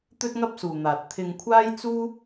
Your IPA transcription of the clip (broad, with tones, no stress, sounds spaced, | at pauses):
t̪ ɵ˥ t̚ ŋ ɐ˥ p̚ s uː˨ n̪ aː˨ t̚ t̪ʰ ɪ˧ ŋ kʷʰ aː˥ j t͡s uː˥